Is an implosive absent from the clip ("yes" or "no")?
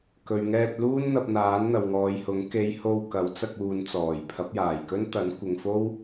yes